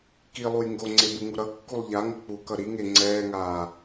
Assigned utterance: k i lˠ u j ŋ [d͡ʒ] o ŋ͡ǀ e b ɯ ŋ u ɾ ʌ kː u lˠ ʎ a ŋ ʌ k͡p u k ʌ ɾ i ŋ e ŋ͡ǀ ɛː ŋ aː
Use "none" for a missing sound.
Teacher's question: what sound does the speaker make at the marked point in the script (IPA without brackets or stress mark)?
ɡ